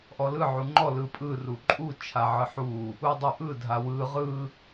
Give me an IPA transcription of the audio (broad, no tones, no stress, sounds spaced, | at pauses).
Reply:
ʔ ɔ l ɯ ʕ u ŋ͡ǃ ɔ l ɯ pʼ ɯ r u ǃʼ u t͡ʃʰ a ʕ ɯ ħ u | u dˤ u ʔ ɯ dʱ a w ɯ ʁ ɯ